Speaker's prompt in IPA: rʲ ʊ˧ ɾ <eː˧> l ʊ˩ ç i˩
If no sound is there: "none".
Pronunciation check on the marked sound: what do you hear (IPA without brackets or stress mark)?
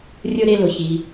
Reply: e˧